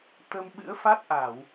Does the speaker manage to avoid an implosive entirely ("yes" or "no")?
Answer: no